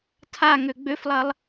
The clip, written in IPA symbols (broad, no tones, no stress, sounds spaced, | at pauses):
tʰ a ŋ ø ɡ͡b ø f lˠ ɐ lˠ